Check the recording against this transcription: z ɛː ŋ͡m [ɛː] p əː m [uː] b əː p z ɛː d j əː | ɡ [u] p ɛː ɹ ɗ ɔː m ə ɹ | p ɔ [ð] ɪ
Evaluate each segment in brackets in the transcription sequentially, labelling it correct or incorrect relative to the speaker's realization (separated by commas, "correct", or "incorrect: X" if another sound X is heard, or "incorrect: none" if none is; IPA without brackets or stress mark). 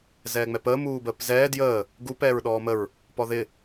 incorrect: ɛ, correct, correct, correct